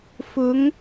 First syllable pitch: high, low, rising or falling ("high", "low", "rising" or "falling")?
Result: rising